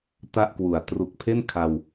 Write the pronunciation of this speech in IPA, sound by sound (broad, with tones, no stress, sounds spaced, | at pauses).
t a˥˩ ʔ k w u˨˩ a̯ t r u˨˩ k̚ pʰ e˥˩ n kʰ a˧ w